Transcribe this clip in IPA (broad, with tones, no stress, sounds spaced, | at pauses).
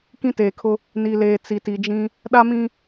k ĩ˦ t eː˨ kʰ ʊ˦ | n i˨ l eː˨ t͡s i˨ t i˨ d͡ʒ ĩ˦ | ɗ a˦ m ĩ˦